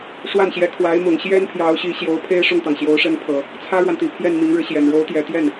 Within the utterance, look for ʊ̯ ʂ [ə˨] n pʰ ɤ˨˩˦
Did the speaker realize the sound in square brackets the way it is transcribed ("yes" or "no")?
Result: no